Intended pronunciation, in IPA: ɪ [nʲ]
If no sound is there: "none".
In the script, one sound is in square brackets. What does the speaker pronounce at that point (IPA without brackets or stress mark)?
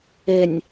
nʲ